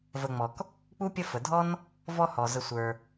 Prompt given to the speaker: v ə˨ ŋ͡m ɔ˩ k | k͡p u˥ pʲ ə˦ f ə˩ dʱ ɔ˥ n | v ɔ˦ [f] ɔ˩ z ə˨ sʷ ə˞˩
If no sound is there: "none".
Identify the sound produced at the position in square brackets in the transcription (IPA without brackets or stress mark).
h